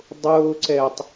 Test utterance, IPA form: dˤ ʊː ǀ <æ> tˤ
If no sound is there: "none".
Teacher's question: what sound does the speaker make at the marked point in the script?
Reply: ɛ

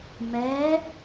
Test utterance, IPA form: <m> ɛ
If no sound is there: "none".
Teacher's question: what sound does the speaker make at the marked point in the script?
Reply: m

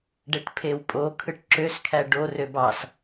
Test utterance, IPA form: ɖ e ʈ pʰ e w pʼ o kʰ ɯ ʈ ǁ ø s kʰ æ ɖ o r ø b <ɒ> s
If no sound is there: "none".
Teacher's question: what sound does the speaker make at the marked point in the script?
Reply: ɑ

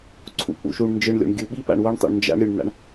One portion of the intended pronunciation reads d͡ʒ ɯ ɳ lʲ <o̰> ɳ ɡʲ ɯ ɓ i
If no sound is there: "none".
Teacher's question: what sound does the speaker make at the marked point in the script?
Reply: o̰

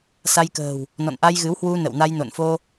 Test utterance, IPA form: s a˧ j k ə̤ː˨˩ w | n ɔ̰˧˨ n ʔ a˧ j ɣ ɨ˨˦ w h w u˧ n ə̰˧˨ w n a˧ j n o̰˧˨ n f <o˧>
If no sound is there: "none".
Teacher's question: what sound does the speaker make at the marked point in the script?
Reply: o˧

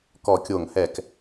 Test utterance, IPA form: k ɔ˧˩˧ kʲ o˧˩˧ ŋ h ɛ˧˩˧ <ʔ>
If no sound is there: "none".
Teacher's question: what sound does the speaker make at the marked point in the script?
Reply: k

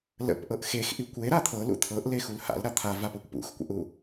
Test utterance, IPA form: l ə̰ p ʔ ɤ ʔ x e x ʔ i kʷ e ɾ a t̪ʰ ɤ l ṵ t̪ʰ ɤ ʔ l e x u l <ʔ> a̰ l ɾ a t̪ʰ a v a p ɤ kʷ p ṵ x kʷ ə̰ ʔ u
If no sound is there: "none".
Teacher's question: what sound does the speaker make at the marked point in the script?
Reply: h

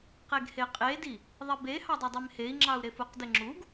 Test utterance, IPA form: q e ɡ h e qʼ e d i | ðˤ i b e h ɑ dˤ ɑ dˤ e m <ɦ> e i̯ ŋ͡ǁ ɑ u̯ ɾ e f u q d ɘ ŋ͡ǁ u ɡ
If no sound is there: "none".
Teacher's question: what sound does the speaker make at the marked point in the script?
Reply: h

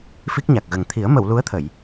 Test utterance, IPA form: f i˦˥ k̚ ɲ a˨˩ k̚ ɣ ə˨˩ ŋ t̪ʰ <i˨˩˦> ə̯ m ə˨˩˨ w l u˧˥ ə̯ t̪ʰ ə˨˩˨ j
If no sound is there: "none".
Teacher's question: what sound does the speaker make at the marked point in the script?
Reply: i˨˩˦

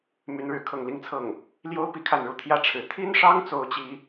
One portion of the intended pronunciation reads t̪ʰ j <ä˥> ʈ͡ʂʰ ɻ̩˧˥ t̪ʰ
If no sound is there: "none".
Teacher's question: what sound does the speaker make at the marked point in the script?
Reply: ä˥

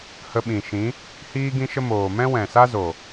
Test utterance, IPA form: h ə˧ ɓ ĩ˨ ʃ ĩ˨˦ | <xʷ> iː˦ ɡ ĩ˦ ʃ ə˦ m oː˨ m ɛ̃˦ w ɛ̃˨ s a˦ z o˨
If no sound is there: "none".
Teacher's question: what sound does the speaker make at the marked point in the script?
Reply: h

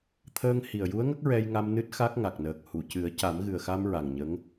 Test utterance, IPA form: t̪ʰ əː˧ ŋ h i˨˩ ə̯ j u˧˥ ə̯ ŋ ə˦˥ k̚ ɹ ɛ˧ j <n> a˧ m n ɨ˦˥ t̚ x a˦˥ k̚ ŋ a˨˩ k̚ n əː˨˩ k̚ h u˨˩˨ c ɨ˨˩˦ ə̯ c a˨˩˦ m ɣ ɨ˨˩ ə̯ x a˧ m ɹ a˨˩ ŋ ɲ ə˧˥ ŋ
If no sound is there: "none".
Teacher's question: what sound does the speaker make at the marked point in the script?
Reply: ŋ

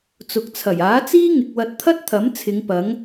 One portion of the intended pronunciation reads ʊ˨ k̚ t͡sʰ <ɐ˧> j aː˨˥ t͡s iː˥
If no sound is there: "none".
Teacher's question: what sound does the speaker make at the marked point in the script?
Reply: ɐ˨˩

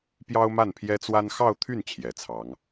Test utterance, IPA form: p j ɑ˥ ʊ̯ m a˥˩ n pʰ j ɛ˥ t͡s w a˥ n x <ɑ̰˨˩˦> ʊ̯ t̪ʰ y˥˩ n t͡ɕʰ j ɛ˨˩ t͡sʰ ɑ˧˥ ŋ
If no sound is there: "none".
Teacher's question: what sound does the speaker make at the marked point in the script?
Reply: ɑ˥˧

